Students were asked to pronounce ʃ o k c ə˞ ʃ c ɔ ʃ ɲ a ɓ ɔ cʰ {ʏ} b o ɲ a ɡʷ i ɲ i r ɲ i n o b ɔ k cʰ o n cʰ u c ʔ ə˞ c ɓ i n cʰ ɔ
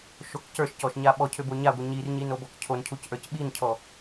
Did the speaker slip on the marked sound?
no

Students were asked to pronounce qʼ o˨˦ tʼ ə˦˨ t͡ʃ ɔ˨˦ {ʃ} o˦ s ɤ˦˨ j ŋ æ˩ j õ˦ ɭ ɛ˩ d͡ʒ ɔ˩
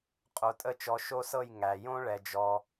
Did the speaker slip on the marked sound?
no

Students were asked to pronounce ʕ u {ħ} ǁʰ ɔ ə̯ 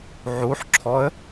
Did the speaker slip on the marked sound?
no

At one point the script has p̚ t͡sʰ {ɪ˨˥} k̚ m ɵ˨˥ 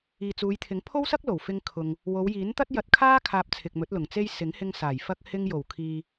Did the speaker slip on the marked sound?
yes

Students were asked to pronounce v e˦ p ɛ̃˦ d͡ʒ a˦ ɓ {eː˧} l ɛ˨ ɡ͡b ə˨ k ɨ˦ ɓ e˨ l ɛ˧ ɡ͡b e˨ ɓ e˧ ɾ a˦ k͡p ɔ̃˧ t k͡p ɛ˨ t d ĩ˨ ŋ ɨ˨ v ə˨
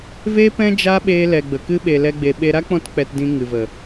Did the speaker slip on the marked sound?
no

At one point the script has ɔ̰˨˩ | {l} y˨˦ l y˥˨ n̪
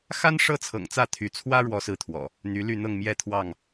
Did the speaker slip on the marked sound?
yes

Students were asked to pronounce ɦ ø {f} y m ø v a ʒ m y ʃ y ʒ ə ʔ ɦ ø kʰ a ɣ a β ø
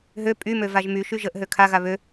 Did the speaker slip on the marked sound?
yes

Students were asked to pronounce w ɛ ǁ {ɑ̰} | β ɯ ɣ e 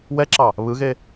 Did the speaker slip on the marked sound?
yes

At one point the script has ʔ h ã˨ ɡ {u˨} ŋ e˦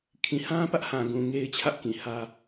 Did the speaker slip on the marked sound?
yes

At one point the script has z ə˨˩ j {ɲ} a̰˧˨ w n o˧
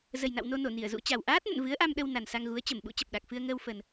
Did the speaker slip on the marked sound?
yes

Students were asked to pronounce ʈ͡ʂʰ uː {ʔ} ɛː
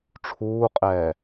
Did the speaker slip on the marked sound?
yes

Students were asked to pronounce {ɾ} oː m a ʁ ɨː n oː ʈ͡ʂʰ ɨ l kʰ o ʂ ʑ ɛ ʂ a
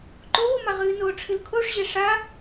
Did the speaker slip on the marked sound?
yes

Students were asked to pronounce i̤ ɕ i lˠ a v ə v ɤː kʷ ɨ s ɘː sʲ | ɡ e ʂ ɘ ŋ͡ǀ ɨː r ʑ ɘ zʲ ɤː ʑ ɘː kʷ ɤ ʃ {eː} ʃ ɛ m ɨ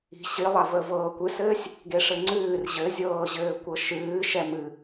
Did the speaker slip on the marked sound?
yes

